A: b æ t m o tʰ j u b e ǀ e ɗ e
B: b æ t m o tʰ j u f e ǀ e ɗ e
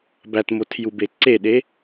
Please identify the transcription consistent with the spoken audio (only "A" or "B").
A